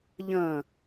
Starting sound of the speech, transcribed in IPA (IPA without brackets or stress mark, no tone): ʎ